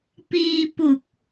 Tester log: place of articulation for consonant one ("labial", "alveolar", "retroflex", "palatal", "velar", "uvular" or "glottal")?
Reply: labial